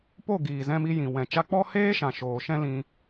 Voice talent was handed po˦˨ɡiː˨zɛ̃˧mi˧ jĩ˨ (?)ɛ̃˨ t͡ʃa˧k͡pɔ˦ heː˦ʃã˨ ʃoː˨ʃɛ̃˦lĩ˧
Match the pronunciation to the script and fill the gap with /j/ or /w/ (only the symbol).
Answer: w